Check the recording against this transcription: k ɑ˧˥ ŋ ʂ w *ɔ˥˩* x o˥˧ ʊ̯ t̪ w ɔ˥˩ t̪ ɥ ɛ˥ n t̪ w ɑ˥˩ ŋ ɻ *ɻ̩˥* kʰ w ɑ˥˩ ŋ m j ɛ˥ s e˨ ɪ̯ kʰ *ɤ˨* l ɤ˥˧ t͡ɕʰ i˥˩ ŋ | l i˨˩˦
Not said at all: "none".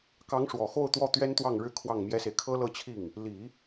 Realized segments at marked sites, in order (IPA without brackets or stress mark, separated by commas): ɔ˨˩, ɻ̩˥, ɤ˥